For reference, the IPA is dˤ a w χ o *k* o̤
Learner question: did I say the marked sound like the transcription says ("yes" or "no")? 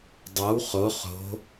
no